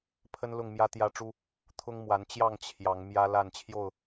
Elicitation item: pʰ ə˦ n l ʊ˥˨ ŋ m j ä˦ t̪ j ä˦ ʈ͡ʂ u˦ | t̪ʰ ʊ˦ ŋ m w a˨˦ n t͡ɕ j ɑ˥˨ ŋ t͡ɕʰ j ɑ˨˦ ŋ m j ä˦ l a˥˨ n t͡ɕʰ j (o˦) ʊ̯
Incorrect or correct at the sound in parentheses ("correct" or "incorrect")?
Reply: incorrect